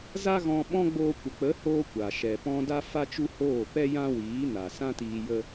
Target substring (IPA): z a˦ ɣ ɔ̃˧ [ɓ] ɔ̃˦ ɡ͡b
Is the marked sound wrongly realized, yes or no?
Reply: no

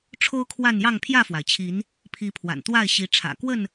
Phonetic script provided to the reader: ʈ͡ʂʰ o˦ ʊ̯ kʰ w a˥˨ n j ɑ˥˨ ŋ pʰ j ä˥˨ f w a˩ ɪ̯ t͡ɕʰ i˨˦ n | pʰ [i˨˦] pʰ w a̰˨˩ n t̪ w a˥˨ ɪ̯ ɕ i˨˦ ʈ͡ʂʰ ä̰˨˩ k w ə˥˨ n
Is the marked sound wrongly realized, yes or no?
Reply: no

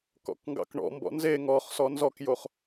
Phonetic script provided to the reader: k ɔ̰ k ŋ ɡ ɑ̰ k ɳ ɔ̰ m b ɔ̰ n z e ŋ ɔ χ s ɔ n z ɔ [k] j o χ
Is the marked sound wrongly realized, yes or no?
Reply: no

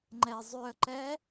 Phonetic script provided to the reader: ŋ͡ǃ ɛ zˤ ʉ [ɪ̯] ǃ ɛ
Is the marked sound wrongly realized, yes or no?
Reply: yes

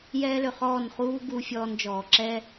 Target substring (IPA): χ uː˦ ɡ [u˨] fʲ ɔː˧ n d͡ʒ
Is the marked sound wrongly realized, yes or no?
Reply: yes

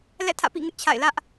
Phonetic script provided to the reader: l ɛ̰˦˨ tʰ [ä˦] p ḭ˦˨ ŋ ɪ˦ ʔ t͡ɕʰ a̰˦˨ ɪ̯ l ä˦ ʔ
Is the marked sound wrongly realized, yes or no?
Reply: yes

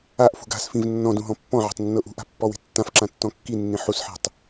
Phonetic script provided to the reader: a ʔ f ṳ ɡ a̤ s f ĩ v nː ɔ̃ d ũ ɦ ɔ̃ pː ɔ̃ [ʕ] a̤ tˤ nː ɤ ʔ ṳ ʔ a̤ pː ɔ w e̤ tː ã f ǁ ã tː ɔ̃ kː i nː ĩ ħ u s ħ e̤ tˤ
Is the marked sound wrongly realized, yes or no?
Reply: no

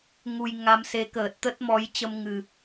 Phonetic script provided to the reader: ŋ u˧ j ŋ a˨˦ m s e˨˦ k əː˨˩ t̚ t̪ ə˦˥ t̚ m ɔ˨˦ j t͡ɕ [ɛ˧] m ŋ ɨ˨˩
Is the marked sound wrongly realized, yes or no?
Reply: yes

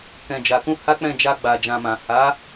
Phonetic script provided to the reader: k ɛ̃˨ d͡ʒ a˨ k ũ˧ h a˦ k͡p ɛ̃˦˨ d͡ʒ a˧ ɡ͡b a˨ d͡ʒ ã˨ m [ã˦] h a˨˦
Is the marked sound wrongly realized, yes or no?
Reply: yes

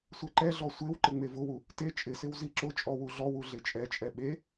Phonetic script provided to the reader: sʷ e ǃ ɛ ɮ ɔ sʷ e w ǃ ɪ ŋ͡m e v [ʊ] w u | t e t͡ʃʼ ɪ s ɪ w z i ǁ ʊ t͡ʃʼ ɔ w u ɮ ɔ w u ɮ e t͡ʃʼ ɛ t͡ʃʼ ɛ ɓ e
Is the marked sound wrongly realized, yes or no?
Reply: no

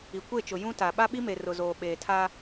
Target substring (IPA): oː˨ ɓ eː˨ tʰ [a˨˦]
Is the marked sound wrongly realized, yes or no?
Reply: yes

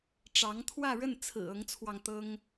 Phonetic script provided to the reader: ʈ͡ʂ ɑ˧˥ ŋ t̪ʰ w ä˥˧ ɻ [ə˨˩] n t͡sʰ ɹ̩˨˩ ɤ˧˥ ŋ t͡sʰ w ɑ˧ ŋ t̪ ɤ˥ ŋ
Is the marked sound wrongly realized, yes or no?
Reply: yes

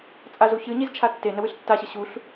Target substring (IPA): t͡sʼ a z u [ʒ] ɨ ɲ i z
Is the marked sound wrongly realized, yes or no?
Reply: yes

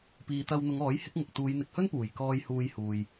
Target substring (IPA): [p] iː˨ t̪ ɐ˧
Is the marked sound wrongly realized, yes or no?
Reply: no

